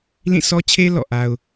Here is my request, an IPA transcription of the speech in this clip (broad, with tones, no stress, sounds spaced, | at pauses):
l ĩ˦˨ sʰ ɔ˦ t͡ɕʰ e˦ l ɔ̰˦˨ ʔ a˦ ʊ̯